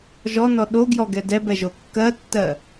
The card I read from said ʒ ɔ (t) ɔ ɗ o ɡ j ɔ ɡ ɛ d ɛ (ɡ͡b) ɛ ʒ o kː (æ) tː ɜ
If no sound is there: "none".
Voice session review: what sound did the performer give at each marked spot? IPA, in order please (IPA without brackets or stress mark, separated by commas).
n, b, ɜ